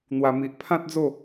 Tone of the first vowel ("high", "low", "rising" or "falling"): low